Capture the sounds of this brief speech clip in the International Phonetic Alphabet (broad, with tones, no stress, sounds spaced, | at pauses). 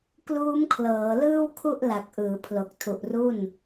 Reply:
k l uː˦˥ m kʰ l ɤː˩˦ l ɯː˥˩ w kʰ u˥˩ ʔ l a˨˩ k̚ ʔ ɯː˩˦ pʰ l o˨˩ k̚ tʰ u˨˩ ʔ r u˥˩ n